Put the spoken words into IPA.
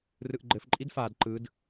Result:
rɯʔɡ͡ǃɘf ǃʼidfad ǃɯd

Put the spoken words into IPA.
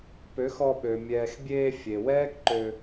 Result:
pø˨˦xɔ˧ɓø˨ mʲɛː˨xbʲeː˧ fʲe˨wɛː˦kǃø˧

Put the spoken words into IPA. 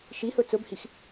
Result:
ʃihɵ t͡sɵbhix

